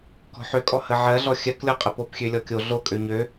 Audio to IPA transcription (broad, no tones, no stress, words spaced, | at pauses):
kɔ̤ħøkʼɔ həʕɜɮɔ xʲɜklʲɔqʼəpop xʲølʲɔkʲo ɮokʼø ɲø